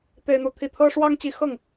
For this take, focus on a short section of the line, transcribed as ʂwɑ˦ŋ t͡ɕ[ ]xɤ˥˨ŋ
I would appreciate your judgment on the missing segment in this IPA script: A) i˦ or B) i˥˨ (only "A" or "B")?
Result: A